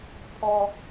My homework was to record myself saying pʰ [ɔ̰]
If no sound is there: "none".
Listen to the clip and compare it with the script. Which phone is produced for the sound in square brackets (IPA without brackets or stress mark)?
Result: ɔ